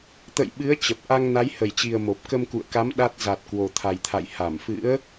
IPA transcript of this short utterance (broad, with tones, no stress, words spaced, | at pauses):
t̪ə̰˧˨jɓɨ˨˦ə̯ t͡ɕə˨˩p̚ ʔa˧ŋna˨˦jhə˧˩jt͡ɕi˨˩ə̯ mo˨˩p̚ kə˧mkṵ˧˨ə̯ka˨˦m ɗa˦˥t̚ za˨˩t̚ kwo˨˩t̪ʰa˨˩jt̪ʰa̰˧˨j ha˧˩mfɨ̰˧˥ə̯